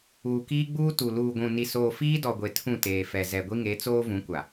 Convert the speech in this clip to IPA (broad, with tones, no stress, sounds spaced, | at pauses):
uː˨ k iː˦ ɡ͡b uː˦ t u˨ l uː˨ ɡʷ ũ˨ n i˨ s oː˨ f iː˦ d ɔ˨ ɡʷ e˨ tʰ ũ˦˨ t eː˨ f ɛ˨ z ɛ˨ ɡʷ i˦ ŋ e˨˦ t͡s oː˦ v ũ˨˦ kʷ a˨